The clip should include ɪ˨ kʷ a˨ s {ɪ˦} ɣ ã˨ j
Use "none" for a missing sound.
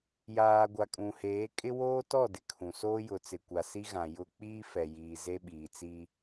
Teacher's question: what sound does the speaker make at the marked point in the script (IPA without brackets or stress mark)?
i˦